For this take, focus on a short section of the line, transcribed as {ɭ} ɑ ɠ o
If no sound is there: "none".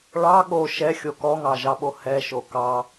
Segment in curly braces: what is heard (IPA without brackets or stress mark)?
ɭ